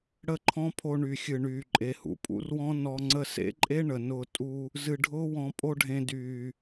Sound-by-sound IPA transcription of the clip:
ɽə˦˨ǃʰɔ̃˦pʰo˧ ɳy˨xʲɨ˨ɳyː˨ ǃʼe˨hṵ˨pʼṵ˦rwɔ̃˦ nɔ˧ ŋ͡ǀə˧sḛ˦ǃʼe˦ ɳə˨nʊː˧ tʼu˧ | zɨ˧ɖʱʊː˦wɔ̃˧ pʼo˦ɖʱẽ˧dyː˨

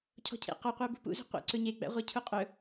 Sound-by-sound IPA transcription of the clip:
cʰɔ̤cʰḛ qɔqʷæ bṳpṵzṳ qʷḛǀɵ ɲe ɡ͡bæ̰ʁʷecʰuqʼɵ

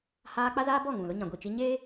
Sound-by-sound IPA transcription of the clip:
haː˦ k͡pa˦zaː˦bɔ˦˨ ŋũ˨lʊ˦ ɲã˨ɡʷi˦˨t͡ʃi˦ ɲeː˦

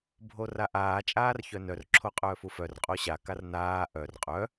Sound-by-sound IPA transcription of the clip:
bʱoraʔaː t͡ʃʼaːrçœnœr ǁʰoqʼœːfufœr qʼoɕa karnaː ʔœr qʼœ

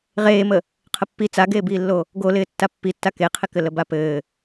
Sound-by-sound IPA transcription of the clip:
ʁeːmə | qʰəpːi t͡saɡeːbiːlːo | ɡolɪː tːapːitːa keqʰɪkɘ ləbapɘː

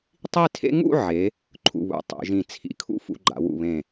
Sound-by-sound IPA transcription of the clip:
tˤi˥˧tʰḛ˥ ŋṵ˥˧ʕe˩˧ | ǃʰṵ˧˩βṵ˩˧ tˤḛ˩˧ʒĩ˧˩ t͡sʰḭ˧˩kʰṵ˥ fṵ˧ɡ͡ǃa̰˩˧wṵ˧˩ βẽ˧˩

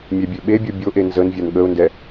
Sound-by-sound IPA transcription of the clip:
mʲɛbʲøɓebʲo bʲoʔe nzənvʲan ɠəʊ̯ndɛ

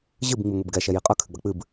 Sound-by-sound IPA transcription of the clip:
ʑɨb ŋ͡miŋʷibɡɛ ʃɛjiqʼɐ kʰɨɡ͡bɐk͡pɨb

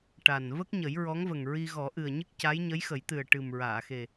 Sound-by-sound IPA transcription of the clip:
ʈa˨˩n və˦˥k̚ ɲə˨˩˦jɹɔ˧˥ŋvə˨˩ŋɹi˧ ɣɔ˨˩˦ʔɨ˨˩ə̯ɲɨ˦˥k̚ ca˧˥jɲə˧˥jxə˨˩˦jt̪ɨ˨˩ə̯ ʈɨ˨˩mɹaː˨˩˨xe˨˩

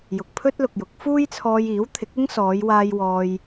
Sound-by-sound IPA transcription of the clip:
jʊ˨k̚pʰɵ˥t̚lʊ˨k̚jʊ˨˥k̚ fuː˥jt͡sʰɔː˧jiː˨˥wt̪ʰɪ˨˥k̚ ɪ˥ŋsɔː˨˧jwaː˧j wɔː˧j

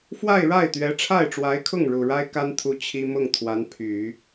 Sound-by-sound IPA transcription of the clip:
fwa˥˧ɪ̯ɻa˥˩ɪ̯ t̪ɥɛ˧˥ʈ͡ʂʰa˥˩ɪ̯ʈ͡ʂwa˧˥ɪ̯kʰʊ˥˩ŋ ɻu˨˩ɻa˥ɪ̯ ka˥nt̪ʰu˧˥ t͡ɕʰi˥ mʊ˥˩ŋ t̪ʰwa˧˥npʰy˨˩˦

